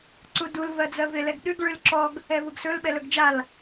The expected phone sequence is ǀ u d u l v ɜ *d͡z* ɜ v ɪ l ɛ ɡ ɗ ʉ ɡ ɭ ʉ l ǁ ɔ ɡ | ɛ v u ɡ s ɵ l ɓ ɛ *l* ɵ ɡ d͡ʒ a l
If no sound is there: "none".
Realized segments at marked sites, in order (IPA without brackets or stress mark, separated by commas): d͡z, l